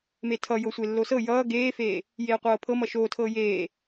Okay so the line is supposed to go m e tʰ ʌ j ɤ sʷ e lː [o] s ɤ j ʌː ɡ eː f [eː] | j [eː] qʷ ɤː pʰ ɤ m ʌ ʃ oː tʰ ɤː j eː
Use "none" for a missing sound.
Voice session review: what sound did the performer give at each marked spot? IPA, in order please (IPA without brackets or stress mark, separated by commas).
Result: o, eː, eː